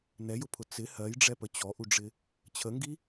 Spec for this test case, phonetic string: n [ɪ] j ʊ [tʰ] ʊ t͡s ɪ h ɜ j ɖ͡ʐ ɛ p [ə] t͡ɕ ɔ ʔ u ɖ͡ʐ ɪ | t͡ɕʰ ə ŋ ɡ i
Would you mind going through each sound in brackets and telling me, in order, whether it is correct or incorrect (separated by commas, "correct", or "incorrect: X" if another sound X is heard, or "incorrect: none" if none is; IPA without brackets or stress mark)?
incorrect: ɛ, incorrect: pʰ, correct